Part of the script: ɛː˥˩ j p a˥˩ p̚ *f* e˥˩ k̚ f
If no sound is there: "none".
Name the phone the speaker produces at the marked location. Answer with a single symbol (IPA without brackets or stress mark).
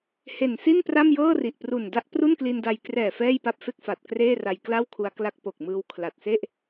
f